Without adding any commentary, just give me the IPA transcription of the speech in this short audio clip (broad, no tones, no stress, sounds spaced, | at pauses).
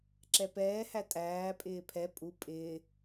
ǁ ɛ p ɛː h æ tʼ æː pʼ ɪː pʰ ɛ pʼ u pʼ ɪː